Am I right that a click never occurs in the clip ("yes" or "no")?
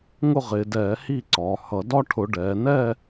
no